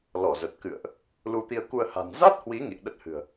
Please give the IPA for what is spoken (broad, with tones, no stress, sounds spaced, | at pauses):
l ɔ˧˩ z ə˨˩ t̚ k ɨ̰˧˨ ə̯ ʔ | l u˧ t̪ i˧ ə̯ k u˧ ə̯ h a̤˨˩ n z a˦˥ t̚ h w i˨˦ ŋ ḭ˧˨ ə̯ ɗ ə˦˥ t̚ h ɨ̤˨˩ ə̯